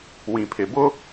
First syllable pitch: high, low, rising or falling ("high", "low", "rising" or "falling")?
low